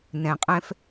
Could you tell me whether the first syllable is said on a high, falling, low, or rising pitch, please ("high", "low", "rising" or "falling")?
low